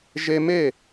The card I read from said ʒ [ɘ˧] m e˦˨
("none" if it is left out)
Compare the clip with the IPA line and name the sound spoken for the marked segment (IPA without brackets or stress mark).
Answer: e˧